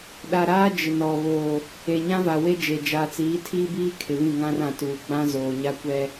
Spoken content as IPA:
ɗa˨ɾaː˦ d͡ʒɪ˨nɔ˨ βoː˨ | e˨ɲã˦va˨ we˦d͡ʒe˨ d͡ʒaː˨t͡siː˨˦tʰiː˦biː˦ kʰɪ˨βĩ˦˨ ŋã˦rã˨tuː˨ ɡ͡bã˦ zoː˨ɲa˦kʷɛ˦

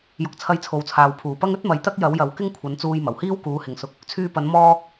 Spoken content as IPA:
jʊ˨˥k̚t͡sʰɐ˧jt͡sʰo˨wt͡sʰaː˨w pʰuː˨˩pɐ˥ŋ ɵ˥t̚mɐ˨˧j t̪ɐ˥k̚jɐ˨˥wjɐ˨˥w kɪ˥ŋkʷʰɐ˨˧nt͡suː˧j mɐ˨˩whiː˥w kuː˨˧hɪ˨ŋsʊ˧k̚ | t͡sʰyː˧pɐ˨˥n mɔː˥

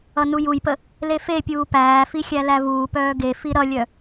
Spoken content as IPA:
ʌnujujpə | lefepʲuː pæːfi xʲælævuːpœː ɡefi ɾʌlʲœ

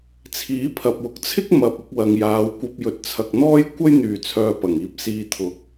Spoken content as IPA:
t͡sʰiː˨˥pʰɐ˨p̚wʊ˨k̚t͡sʰɪ˥k̚ mɐ˨p̚ ʊ˨˥k̚wɐ˨ŋjaː˨˧wkʷɐ˧p̚ jɵ˨t̚t͡sʰɐ˨k̚n̪ɔː˥j kʷɐ˥jn̪yː˨˩ t͡sʰœː˧pɐ˨˩ŋiː˧p̚siː˧ t̪ʰʊ˨˥k̚

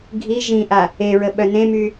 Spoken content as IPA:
ɡʱi ʒĩʔa | eɹəɓœ nẽmy

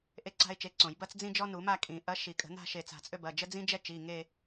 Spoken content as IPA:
ʔe˥ǀa̤˥ɪ̯t͡ʃe˨˥ǀõ˨˩˦j bɐ˥t͡sd͡zĩ˥ d͡ʒɔ˥nu˨˩˦ma˥˧kʼĩ˨˩˦ ʔɐ˨˥ʃi˨˩˦kʼə̤˨˩˦na̤˥˧ ʃe˧˩t͡sa̤˧˩t͡sʼø˥bɐ˩˧˩ d͡ʒə˥d͡zĩ˥d͡ʒɛ˥ t͡ʃi˩˧˩ŋe˥˧

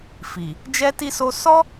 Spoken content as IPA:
fi˨ | d͡ʒɛ˦ti˦so˦ sɔ˦

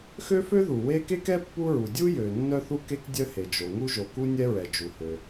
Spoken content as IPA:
xø˥fø˥ðu˩ we˥ ke˥kɛ˥ pːu˥ɹu˩ dʲu˥jø˩ nːœ˥θu˥ke˥k dʲœ˥ he˩d͡ʒo˩ ŋu˥ʒo˩ku˥nʲɛ˥ ɹɛ˩d͡ʒu˩hø˩

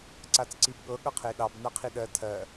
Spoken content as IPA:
ǀat͡sǀibɠɤ ɠʌqʰeɗɑb naqʰiɗɜ tʰɜ

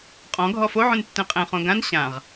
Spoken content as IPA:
qʼɔ̃ ɡʱɔfoʕũn tːɛ̃qʼɛ̃ χõɡãn ɕãʁ

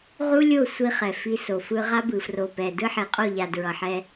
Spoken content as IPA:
ʁu˦lʲo˦˨ sʷi˦χɛ˨ fi˦ so˨fɯ˦ ʁa˦bɯ˨fro˨ pɛ˨ dɯ˦ħe˨qʼo˦˨ʎa˨ dɹʌ˨ħɛ˦

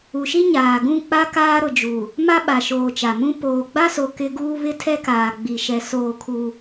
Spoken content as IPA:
u˨ʃi˦ ɲaː˨ɡũ˦˨k͡pa˦ kaː˦ɾʊ˨d͡ʒu˨ | ma˦ɓa˨ʃoː˨ t͡ʃa˨mũ˦ poː˨ɡ͡ba˦so˨ kɪ˦ɡuː˦ βɪ˦tʰɛ˦kaː˨ ɡ͡bi˨ʃɛ˨ soː˦˨kʰu˦

